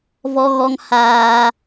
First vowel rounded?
yes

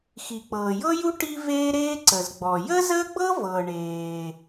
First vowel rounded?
no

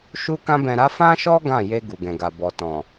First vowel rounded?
yes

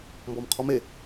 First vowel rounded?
yes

